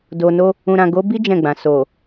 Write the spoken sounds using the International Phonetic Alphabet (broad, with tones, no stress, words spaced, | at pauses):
do˨no˧ | ũ˨ɾã˨ɡo˨˦bi˦ d͡ʒɛ̃˦˨ɡ͡bã˨ so˨